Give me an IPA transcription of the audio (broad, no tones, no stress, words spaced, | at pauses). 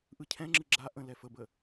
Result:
ʔɯcʰɛ̃ŋ͡ǁɯ ɡ͡ǁa ʔə̃ lɛfəbə